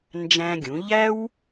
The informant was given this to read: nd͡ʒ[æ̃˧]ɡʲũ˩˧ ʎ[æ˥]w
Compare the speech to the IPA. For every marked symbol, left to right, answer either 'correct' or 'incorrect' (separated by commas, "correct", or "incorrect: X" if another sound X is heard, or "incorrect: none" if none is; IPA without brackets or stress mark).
correct, correct